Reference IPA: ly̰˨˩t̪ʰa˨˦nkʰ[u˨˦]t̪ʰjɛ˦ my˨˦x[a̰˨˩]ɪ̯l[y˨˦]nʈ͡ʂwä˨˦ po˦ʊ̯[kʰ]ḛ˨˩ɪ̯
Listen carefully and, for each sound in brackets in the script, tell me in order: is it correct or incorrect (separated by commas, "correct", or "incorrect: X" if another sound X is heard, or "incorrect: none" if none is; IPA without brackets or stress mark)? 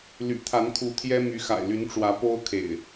correct, correct, correct, correct